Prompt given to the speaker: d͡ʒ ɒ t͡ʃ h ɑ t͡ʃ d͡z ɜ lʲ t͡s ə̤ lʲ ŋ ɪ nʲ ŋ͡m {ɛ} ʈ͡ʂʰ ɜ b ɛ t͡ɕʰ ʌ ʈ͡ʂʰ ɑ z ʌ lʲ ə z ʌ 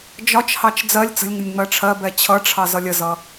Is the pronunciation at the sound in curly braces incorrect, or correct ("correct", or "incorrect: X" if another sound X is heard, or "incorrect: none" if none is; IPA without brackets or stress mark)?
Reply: incorrect: ɜ